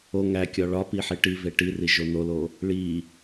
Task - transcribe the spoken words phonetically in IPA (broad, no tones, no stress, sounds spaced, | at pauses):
o ŋ æ kʲ ɒ ɭ ɒ p i ħ i ʈ i v e ʈ i r i ʒ o n o l o | ɭ i